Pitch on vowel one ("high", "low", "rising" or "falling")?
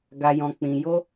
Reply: low